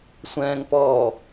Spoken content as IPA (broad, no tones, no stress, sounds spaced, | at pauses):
sʷ ɛ̃ː ŋ p ɔː